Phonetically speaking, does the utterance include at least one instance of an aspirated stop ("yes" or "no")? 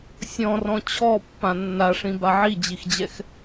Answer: yes